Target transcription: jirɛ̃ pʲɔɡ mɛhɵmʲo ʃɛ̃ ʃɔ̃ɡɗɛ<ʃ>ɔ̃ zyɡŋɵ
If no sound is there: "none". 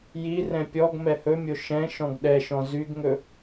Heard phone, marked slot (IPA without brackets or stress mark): ʃ